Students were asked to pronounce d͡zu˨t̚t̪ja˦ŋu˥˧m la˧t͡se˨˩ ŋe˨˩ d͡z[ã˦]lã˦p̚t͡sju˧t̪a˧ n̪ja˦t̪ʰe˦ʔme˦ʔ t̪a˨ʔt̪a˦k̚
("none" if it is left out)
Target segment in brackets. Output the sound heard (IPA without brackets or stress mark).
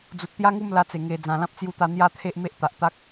ã˨˩